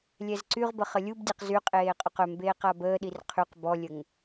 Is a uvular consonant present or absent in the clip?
present